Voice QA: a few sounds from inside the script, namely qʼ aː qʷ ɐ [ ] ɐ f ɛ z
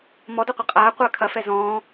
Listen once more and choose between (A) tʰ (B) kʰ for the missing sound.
B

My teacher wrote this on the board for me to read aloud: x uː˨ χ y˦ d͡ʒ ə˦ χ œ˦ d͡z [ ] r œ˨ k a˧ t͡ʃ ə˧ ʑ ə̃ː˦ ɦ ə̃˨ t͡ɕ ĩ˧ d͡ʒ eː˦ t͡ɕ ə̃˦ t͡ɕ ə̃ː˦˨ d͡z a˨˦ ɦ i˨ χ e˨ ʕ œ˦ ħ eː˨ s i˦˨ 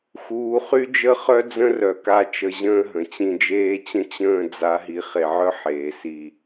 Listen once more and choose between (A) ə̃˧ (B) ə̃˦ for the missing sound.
B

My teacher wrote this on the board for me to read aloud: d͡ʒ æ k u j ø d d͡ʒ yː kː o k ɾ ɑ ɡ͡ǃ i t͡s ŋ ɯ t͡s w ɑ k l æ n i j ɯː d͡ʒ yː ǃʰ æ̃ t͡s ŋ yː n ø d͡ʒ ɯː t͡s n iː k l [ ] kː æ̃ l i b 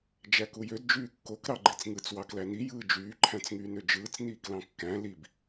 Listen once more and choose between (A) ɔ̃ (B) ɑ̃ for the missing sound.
B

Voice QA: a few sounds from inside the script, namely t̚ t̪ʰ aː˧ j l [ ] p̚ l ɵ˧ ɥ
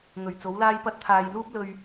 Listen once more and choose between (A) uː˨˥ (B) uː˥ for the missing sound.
B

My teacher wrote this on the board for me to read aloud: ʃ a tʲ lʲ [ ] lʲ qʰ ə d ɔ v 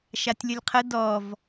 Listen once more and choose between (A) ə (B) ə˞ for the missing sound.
A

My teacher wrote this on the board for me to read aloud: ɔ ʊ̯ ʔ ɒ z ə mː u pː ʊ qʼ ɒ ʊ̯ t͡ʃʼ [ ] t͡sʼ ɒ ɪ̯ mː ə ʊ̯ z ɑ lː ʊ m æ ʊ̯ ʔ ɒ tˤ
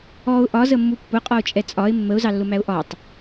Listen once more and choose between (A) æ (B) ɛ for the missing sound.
B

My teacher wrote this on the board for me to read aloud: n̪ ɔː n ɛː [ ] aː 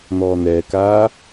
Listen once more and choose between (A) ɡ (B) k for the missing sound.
B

